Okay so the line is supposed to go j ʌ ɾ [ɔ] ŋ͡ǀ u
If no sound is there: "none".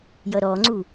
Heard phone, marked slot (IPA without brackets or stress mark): ɔ